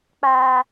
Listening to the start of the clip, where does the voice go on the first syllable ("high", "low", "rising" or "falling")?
high